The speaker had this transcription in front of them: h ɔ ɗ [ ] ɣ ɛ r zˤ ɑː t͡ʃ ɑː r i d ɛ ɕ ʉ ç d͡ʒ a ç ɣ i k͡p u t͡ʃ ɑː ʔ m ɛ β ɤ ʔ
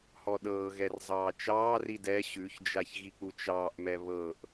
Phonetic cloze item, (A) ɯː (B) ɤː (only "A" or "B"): B